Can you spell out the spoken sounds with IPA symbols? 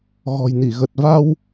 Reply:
ɣɔ̤˨˩jni˧˩ɣə˨˩t̚va˧w

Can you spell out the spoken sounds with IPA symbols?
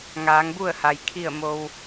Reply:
ŋaː˩˧ŋbu˥˨ə̯ha˩j kʰi˥˨ə̯ mo˧w

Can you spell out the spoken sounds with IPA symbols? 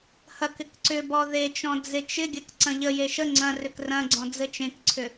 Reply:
hɐkɪk ǀʏbɔ ðet͡ʃɔ̃ d͡zet͡ʃɪɡʲɐk ǀɐ̃ʎəje ʃə ŋ͡ǀɐ̃rʏk rɐ̃ɡ͡ǀɔ̃ d͡zɘt͡ʃẽkǀʰʏ

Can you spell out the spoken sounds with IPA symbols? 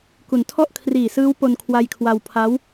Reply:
ku˩˦ntʰɔ˥˩ʔ kʰriː˨˩sɯː˦˥w po˧nkʰwa˧jkʰwa˧wpʰa˦˥w

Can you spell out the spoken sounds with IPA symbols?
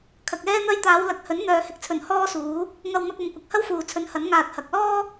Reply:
kʰɐ˨k̚ɛː˥n̪ɐ˥j t̪aː˨˧wlɐ˨˥k̚hɵ˨˥n n̪œː˨˧hɪ˨˥k̚t͡sʰɵ˨˩n hɔː˥suː˨˥ | ŋɐ˧wn̪ɐ˧k̚ɐ˨˧m kʷɐ˨k̚hɐ˥wfuː˨ t͡sʰɵ˨˧nhɐ˨˥n ŋaː˧t̚hɐ˨˥k̚ lɔː˥

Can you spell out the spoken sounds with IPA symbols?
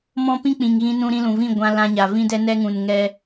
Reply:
mɔ̃˦ pĩ˦k͡pĩ˨ŋ ɣĩ˧ nũ˧ɾĩ˧lũ˨vĩ˦˨ ɡʷã˧lã˧ɲa˨ vĩ˦dɛ˦ nɛ˦ŋũ˨nŋɛ˧

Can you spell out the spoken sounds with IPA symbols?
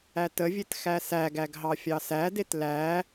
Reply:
ætəvʲet xæsæɡæɡ ɦɑfʲɑsædet læ

